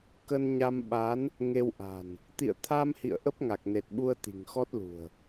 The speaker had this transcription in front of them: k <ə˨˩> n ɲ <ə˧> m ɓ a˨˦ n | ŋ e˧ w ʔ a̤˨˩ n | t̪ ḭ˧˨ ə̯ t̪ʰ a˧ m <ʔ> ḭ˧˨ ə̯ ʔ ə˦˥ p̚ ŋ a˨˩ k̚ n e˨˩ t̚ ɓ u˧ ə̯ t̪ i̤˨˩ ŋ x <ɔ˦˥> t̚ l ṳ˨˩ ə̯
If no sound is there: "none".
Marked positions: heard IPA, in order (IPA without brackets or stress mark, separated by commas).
ə˧, a˧, h, ɔ˦˥